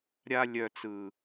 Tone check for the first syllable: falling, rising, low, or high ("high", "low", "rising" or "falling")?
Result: high